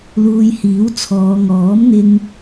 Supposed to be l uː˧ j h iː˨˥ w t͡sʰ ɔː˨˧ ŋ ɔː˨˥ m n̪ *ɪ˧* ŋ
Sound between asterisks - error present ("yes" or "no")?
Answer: no